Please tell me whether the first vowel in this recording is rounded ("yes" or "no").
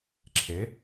no